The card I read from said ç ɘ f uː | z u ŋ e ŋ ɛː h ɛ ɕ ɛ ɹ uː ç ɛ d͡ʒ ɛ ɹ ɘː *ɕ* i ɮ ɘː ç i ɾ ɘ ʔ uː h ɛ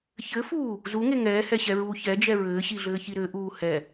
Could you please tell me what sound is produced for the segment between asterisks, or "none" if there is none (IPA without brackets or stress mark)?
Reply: ɕ